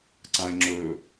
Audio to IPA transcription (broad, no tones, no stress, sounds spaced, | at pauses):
ǀ ã ɪ̯ ŋ͡ǁ ɵ